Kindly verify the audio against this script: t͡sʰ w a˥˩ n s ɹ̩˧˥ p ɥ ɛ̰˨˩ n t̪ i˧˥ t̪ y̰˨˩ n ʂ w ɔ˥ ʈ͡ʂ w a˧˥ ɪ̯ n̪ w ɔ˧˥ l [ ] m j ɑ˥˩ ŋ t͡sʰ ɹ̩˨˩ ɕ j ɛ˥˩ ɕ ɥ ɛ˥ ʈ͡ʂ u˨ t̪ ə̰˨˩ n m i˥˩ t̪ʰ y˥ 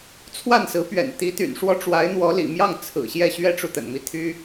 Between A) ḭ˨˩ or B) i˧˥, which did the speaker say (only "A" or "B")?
A